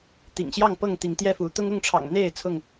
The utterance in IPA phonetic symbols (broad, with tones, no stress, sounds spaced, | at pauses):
t̪ ḭ˨˩ ŋ ɕ j ɑ˥˨ ŋ p ɤ˥˨ ŋ t̪ i˨˦ ŋ t̪ j ɛ˥˨ f u˨˦ t̪ ʊ˦ ŋ ʊ˥˨ ŋ ʈ͡ʂʰ ɑ̰˨˩ ŋ n̪ e˥˨ ɪ̯ t͡sʰ ʊ˥˨ ŋ